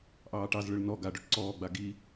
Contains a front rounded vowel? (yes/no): yes